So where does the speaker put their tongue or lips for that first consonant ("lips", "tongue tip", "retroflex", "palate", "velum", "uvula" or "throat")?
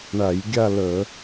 retroflex